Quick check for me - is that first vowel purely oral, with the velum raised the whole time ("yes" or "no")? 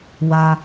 yes